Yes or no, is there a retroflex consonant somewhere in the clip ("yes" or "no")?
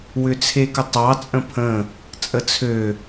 no